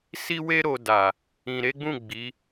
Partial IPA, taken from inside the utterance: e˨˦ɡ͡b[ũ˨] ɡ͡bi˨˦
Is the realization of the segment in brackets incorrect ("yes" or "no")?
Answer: yes